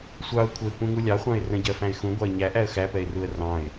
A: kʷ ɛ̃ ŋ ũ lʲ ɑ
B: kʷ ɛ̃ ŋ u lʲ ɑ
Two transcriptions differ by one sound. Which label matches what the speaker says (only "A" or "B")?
B